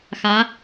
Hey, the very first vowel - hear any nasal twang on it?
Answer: no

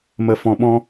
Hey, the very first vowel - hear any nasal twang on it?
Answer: no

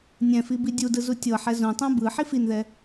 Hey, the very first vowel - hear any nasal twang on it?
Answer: yes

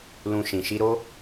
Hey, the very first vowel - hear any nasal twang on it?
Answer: yes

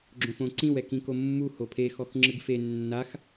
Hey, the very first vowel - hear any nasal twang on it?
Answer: yes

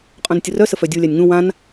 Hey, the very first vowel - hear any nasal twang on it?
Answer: yes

